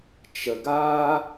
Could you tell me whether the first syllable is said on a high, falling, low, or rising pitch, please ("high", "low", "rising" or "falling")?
low